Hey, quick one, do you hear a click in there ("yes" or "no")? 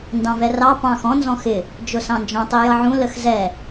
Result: no